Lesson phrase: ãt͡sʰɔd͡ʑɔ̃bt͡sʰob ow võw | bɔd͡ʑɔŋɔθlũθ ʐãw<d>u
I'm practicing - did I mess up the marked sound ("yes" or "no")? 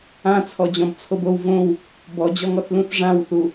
yes